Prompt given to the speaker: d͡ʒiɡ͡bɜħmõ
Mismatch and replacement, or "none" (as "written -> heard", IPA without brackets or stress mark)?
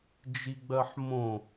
none